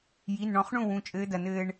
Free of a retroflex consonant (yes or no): no